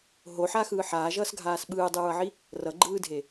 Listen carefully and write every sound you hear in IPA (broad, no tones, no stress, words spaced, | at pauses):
ɦoħaxɯː ħaːʒʌːsɡʱaːs ɓɯːdˤɯɹʌʕi | rʌɡ͡ǃɯːdʱe